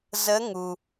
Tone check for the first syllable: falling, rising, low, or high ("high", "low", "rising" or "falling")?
rising